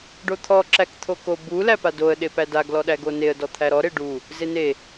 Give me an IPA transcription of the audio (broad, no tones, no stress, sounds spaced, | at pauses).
ɖ o t̪ʰ ɔ ǁ æ k t̪ʰ o k o b u l æ p a d o ə̯ ɗ e p æ d a ɡ l ɔ ɗ æ ɡ o n e ə̯ d ɔ t̪ʰ æ ɾ ɔ ɾ e ɖ u | z e n e